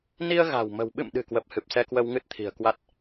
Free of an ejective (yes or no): yes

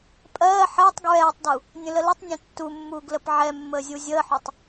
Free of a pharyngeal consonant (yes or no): no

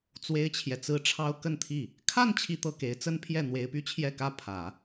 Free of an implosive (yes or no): yes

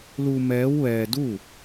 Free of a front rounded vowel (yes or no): yes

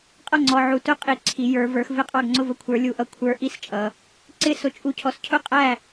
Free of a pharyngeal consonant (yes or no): no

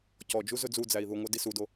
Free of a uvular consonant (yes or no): yes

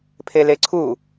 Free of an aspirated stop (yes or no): no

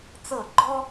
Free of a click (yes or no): no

